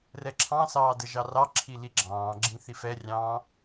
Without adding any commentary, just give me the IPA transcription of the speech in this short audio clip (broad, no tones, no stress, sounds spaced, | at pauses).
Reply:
r ɛ ǁʰ ɑ̃ s ɑː d ə ʒ ɑ r ɑ ǁʰ i l i ɡ͡ǁ ɑ̃ː ɡ͡ǁ ĩ θ i f ɛ rʲ ɑ̃ː